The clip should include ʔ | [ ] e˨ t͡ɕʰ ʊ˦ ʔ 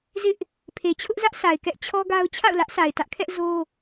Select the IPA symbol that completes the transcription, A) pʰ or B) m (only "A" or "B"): A